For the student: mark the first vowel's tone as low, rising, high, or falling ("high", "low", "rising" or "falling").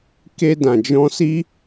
high